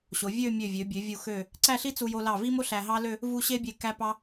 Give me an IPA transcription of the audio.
ɕ o˩˧ vʲ ø˥˧ mʲ ø˧˩ vʲ ø˩˧ bʲ ø˩˧ vʲ u˧˩ x ø˧˩ | ǀ æ˥˧ ɬ i˥ t͡s u˧ j o˧ l ɑ˧˩ v i˥ m o˥ ɬ æ˧ ɦ ɑ˥ l ø˥˧ | v u˥˧ ɕ e˥ bʲ e˧˩ k æ˧ p ɑ˧

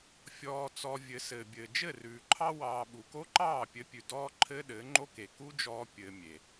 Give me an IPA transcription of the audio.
fʲ ɔː˧ t͡s ɔ˧ vʲ ɘ˨˦ s ɘː˨ bʲ ɘː˨ d͡ʒ ɘ˦˨ r ʉː˨ ǃʰ ɑ˦ w ɑː˧ ɓ u˨ k o˦ ǃ ɑː˦˨ pʲ ɘ˧ pʲ ʉ˨ d ɔː˦ ǃʰ ɘː˦ ɗ ɘː˨˦ ŋ͡ǃ o˦ k e˨ k u˦ d͡ʒ ɔː˧ pʲ ɘː˧ mʲ e˨

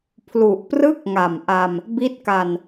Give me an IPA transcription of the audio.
pʰ l u˨˩ ʔ p r ɯ˥˩ k̚ ŋ a˨˩ m ʔ a˧ m | b i˦˥ t̚ k a˧ n

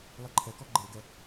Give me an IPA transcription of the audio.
lˠ i ǃʰ ɛ k ɔ ɡ͡ǃ e ɡ ɛ

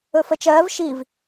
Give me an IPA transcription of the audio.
ɵ f ə t͡ʃ ɜː v ʃ i v

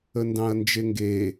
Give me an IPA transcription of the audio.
ə n d ɑ̃ ɐ̯ n d͡ʒ e ŋ ɡ e

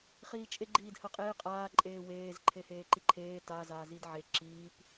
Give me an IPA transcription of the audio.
χ iː t͡ʃʼ e ɡ͡ǃ iː d h ɜ qʼ eː qʼ aː ǃʼ eː w eː z ǃʰ e h eː ǃ i ǃʰ eː t a z aː z i d ʕ e ǁ iː p

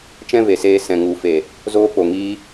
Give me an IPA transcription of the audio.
t͡ʃ ɛ̃˦ v e˨ s eː˧ s ɛ̃˨ ŋ u˨˦ f e˨ | z oː˦ k͡p o˨ ŋ iː˦

